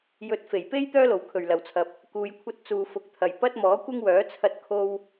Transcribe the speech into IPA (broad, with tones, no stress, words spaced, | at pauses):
jɵ˨˥t̚fe˨˩jpe˥j t̪œː˥lo˨˩w kʰɵ˨˩ɥlɐ˨˩wt͡sʰɐ˨p̚ | kuː˨jkʷʰɐ˧t̚ t͡suː˨fʊ˨k̚t̪ʰɐ˨˩j pɐ˥t̚mɔː˨˥kʷɪ˥ŋwœː˨˥ t͡sʰɐ˧t̚kʰo˧w